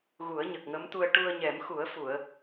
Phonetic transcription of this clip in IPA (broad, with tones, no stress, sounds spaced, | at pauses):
ɣ u˨˩˦ ə̯ ɲ ə˨˩ k̚ ŋ ə˧˥ m t̪ u˧ ə̯ ʈ u˧ ə̯ ɲ ɛ˨˩˦ m x u˨˩˦ ə̯ f u˨˩˨ ə̯